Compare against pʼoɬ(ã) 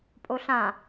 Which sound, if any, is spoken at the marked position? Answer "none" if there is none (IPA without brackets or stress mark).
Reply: ã